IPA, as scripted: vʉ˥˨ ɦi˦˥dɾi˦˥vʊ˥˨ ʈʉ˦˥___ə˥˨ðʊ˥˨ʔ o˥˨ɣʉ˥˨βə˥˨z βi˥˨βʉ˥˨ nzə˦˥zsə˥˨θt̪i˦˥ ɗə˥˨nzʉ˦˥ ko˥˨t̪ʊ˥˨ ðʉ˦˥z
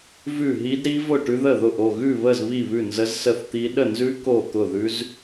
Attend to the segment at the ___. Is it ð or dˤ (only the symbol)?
ð